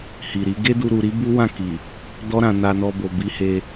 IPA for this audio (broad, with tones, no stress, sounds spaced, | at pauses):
h i˨ ɾ i˨˦ ɡ e˦ d u˧ ɾ u˧ ɾ i˦ b u˦ w ã˦˨ k i˨ | d ɔ˦ ɾ ã˧ n a˧ n ɔ˧ b o˨ b i˨˦ h e˧